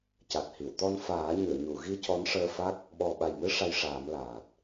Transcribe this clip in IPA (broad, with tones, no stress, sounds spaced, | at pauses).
c a˨˩ t̚ h i˨˩˨ w t̪ ɔ˧ n f aː˨˩˦ ɲ ɨ˨˩˨ ə̯ ɲ u˨˩˨ ɣ i˧ c ɔ˧˥ n ʂ əː˧ f a˦˥ k̚ | ɓ ɔ˨˩ ɓ a˨˩ j m ɨ˧ ʂ a˧ j ʂ aː˨˩˦ m l aː˨˩ t̚